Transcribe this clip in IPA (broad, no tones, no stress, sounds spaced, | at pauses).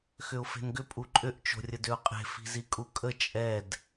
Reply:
x ʏ ʊ̯ f e̤ n ɡ ʏ pʼ u ǃʼ ʏ ʔ t͡ʃ o̤ rʲ ə d ʏ ʊ̯ qʼ e̤ f i̤ z i kʼ u kʼ ə t͡ʃʼ ɛ d